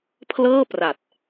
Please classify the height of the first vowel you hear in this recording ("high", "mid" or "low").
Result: mid